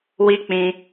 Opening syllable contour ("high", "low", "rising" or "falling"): high